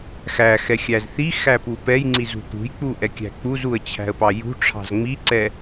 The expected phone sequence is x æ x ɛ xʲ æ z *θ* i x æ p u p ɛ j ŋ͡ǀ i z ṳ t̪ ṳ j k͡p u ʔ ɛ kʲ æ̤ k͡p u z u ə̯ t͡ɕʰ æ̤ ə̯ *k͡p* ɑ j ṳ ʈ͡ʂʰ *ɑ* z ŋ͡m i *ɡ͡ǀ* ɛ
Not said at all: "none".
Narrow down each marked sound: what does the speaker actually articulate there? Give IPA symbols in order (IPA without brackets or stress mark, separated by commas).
θ, p, ɑ̤, ǀ